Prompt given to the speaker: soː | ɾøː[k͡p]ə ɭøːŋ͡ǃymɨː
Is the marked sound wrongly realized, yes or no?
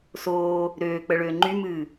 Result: no